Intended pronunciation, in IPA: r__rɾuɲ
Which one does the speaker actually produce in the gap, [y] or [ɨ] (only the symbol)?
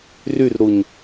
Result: y